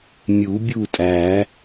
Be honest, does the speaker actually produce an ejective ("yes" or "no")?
yes